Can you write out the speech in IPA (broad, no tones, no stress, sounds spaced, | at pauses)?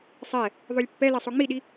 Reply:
sˤ ɛ | ðˤ o lʲ pː ɛ l ɛ sˤ o ŋ͡m i ɗ i